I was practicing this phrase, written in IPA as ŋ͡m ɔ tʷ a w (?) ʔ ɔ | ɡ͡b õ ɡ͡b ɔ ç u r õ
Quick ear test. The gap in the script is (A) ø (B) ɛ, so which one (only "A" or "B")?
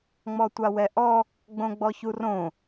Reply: B